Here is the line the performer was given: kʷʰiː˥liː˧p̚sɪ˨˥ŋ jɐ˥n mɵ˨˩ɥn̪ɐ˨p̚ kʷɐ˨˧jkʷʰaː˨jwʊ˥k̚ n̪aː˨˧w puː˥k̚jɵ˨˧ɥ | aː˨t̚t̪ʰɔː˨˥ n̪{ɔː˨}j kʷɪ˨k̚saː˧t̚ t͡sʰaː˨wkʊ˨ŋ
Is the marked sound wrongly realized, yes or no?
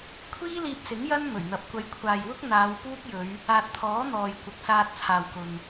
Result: no